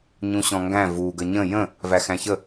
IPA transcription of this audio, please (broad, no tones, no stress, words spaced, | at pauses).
ɲũɕɔ̃ŋɡæ̃ vu ɡəɲə̃ jə̃ | væxæ̃çə